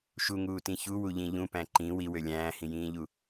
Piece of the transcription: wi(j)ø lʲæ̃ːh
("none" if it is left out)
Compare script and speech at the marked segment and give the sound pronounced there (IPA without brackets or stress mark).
w